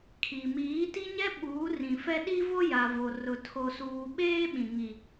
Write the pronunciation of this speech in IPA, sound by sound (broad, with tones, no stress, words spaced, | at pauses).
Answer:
kʰi˨ miː˨˦ti˦ɲɛ˦ ɓuː˨˦rĩ˨fɛ˦ ɗi˦vo˦ ja˨vo˨ rʊ˨ tʰo˨suː˨ ɓeː˦ ɓĩ˨ŋi˨